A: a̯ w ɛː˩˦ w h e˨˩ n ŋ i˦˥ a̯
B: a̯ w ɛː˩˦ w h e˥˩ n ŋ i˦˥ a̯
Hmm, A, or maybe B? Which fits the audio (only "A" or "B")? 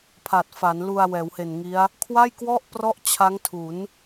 A